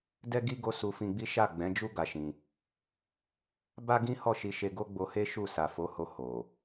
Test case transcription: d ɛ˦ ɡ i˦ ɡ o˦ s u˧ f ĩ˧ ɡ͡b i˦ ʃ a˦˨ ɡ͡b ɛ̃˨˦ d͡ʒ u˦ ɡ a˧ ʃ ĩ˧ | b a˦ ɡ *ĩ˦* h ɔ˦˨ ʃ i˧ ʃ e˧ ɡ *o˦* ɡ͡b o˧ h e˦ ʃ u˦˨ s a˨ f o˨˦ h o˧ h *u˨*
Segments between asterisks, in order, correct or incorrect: correct, correct, incorrect: o˨

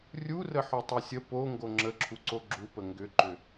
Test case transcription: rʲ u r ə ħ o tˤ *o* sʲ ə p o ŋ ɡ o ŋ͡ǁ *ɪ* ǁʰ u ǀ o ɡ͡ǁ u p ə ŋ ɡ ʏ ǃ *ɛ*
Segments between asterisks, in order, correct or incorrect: correct, incorrect: ə, incorrect: ʏ

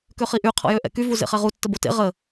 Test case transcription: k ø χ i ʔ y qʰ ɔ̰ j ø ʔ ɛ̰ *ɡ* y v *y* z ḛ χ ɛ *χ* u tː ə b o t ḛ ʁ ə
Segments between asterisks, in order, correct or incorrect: incorrect: k, incorrect: u, incorrect: ʁ

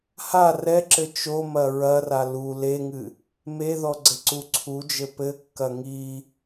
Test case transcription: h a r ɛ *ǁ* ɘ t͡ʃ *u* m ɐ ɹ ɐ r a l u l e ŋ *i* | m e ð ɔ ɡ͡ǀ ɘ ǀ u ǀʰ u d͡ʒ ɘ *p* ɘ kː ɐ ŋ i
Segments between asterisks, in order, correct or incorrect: correct, incorrect: o, incorrect: ɨ, correct

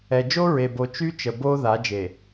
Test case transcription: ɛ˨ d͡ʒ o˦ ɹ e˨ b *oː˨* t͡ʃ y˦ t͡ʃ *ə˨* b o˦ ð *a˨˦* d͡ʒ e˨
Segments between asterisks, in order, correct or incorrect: incorrect: o˨, correct, correct

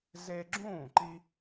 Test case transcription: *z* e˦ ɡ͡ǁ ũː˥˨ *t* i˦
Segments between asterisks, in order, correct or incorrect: correct, incorrect: ǃ

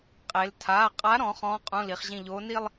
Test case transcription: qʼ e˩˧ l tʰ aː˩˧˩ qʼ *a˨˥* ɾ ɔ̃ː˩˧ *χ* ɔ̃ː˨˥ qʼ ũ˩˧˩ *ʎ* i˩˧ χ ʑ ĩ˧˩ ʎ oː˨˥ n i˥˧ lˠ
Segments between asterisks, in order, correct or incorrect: correct, correct, incorrect: l

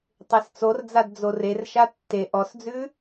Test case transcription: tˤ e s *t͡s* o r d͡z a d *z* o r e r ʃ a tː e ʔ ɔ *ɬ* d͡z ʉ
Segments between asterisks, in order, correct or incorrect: correct, incorrect: d͡z, incorrect: s

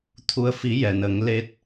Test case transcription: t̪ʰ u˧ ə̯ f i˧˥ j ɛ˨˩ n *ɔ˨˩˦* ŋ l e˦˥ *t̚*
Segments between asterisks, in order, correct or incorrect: incorrect: ə˨˩˦, correct

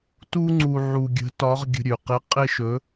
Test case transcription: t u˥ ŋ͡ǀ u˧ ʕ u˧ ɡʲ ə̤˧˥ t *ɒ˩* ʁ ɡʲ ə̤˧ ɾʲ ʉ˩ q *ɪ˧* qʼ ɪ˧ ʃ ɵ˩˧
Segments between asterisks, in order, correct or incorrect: incorrect: ɒ˧˥, incorrect: ɪ˧˥

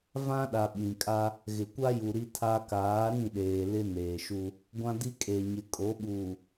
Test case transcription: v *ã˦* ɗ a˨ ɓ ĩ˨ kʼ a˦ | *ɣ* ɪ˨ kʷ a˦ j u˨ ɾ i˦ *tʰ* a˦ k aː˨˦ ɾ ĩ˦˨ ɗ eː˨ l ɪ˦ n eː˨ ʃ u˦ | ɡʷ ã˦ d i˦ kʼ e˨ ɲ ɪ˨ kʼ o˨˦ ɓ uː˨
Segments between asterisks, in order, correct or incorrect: correct, correct, correct

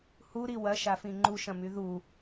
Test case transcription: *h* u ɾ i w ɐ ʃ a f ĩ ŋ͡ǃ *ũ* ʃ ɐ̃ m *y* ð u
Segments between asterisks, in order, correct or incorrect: correct, incorrect: u, correct

